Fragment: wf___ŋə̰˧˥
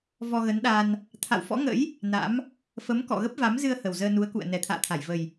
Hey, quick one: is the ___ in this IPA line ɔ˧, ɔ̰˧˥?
ɔ̰˧˥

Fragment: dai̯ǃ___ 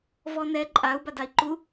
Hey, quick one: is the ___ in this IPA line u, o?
u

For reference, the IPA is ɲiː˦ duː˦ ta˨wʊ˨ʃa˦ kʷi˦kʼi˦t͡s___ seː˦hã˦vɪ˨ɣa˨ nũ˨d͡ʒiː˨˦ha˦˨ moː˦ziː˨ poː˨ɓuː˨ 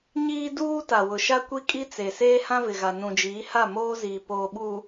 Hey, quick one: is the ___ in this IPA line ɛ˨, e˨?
e˨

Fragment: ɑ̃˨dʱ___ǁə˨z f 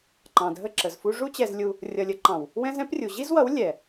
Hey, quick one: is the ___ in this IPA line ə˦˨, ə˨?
ə˦˨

